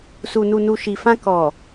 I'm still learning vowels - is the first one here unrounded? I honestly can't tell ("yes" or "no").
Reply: no